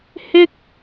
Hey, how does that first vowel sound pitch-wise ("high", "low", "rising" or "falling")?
high